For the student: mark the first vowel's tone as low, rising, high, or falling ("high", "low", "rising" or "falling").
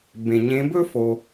low